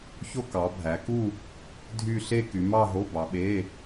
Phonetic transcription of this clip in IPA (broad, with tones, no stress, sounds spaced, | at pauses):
ç o˥˧ k ɑ˨˦ bʱ æ˨˦ k u˥˧ | dʱ y˥˧ ɬ e˥˧ k y˨˦ m ɑ˥˧ ɦ o˧˥˧ b ɑ˨˦ ɓ e˧˥˧